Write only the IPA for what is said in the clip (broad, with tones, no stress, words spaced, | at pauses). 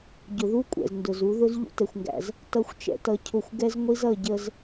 ɟʊ˨ðu˦ kʷʼɛ̰˨zndʊ˨z u˨˦ðʊ˦z ʎṵ˦tɛ˨xʷŋɡæ̰˨z | tʌ˦˨xʷt͡ʃɛ̰˧tʌ˧ cʰʊ˦˨xʷ ɡɛ˦z ŋʷi˦zʌ˦˨ɟə˧z